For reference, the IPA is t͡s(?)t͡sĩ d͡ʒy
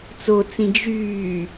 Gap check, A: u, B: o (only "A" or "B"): B